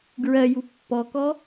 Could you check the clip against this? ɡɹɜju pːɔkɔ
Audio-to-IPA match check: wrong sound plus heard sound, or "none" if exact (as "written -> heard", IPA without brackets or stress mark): none